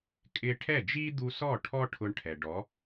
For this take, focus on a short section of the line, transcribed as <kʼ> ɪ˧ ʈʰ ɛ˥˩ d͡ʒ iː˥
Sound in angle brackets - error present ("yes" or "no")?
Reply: no